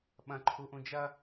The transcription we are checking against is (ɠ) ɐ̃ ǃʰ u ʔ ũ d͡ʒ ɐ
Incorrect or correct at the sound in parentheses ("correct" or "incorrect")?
incorrect